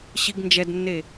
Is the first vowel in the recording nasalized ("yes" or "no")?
no